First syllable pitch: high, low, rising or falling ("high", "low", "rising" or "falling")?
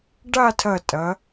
falling